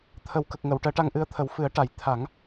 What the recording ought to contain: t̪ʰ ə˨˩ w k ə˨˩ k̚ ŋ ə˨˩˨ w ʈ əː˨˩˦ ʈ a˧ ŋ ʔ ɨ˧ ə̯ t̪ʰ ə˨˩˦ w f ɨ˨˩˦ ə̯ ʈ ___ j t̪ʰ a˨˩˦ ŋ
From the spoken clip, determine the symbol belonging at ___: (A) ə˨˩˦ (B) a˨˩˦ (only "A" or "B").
B